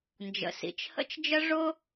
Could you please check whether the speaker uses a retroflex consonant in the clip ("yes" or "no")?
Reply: yes